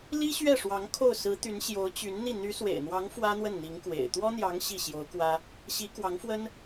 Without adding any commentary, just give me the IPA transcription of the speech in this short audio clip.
li˥ɕɥɛ˥˩ʂwɑ˧˥ŋ kʰo˥˩ʊ̯sɹ̩˧˥ t̪y˧˥nɕjo˧˥ʊ̯ t͡ɕy˧˥nn̪i˥˩ n̪y˧˥swḛ˨˩ɪ̯n̪wɑ˧˥ŋ fwä˥n̪wə˥˩n n̪i˧˥ŋkwḛ˨˩ɪ̯ t̪wɔ˥n̪jɑ˧˥ŋ ɕi˥˩ɕjo˧˥ʊ̯kwä˥ | ɕi˧˥kwɑ˧˥ŋfwə˥n

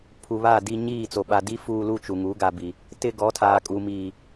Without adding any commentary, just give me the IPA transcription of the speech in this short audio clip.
pʰu˨βa˦˨di˦ ɲiː˦˨t͡so˨ ɓa˨di˦ fuː˦lu˦t͡ʃu˨ŋu˨˦ ɡa˨ bi˨ | tɪ˦ɡɔ˨˦tʰaː˨kʼu˨ miː˨

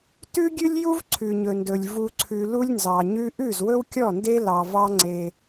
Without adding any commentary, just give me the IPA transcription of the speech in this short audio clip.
tʉ˦ ɡʲʉ˦lʲju˦v ǀʰʉ˨ɲɵ˨ndɵ˨lʲ vu˨ǀʰʉ˨ lu˦lʲnzɑ˨ɲʉ˦ ʔʉ˦˨zwɵ˦wkʲɔ˦˨nde˦ lɑ˨vɑ˦ ŋ͡ǀe˦

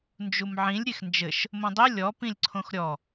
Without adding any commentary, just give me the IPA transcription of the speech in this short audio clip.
nd͡ʒumʕĩlʲ ɾʲexnd͡ʒɘʃ | mõdˤi lʲɔ pĩlʲǀʰõxɾʲɔ

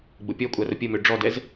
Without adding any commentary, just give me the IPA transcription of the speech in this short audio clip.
ɡ͡bʊpʲɔkʷʼa rʊpʲəmø ɖ͡ʐɔdɛz

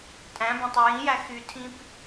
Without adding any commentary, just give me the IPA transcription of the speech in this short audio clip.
tʼæ̃ bæ̃tˤyjĩjæ xytʰĩp

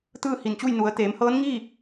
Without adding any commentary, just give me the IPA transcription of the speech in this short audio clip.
t̪ɯː˥˨hi˧˩nt͡ɕu˥˨j nu˩˧ə̯t̪eː˩˧mhɤː˧˥n ŋi˥˨

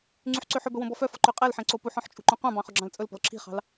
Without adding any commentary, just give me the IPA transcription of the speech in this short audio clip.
ŋ͡ǀyħǀøħɵbɵ wõbɔfœfɔ ǃøqʼɛlħẽ ǀopuħɔ̃ħ t͡ʃʼṳǃõqʷɑ̃bɑ̃ χɵɡ͡ǁɑ̃lt͡sʼɵlpɔ̤l ǁʰi̤χɑ̤l

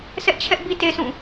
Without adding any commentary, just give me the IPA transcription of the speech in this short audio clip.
sɛ˦ʔt͡ɕʰɛ˦ʔ bi˦te˦sũ˦˨

